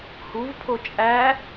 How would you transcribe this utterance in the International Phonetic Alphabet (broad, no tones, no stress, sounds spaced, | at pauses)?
h u v pʰ o t͡ʃʼ æ